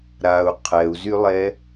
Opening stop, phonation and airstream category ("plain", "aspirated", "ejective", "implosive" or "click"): aspirated